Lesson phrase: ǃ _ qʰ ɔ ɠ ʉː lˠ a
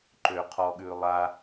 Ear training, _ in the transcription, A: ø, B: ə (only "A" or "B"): A